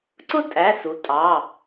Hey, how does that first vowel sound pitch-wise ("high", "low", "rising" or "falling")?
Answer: high